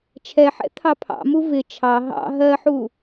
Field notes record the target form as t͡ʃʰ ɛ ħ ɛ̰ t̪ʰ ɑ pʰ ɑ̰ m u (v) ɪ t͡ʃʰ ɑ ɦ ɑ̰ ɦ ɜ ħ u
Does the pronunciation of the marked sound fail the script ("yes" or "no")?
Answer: no